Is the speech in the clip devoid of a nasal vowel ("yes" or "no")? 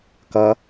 yes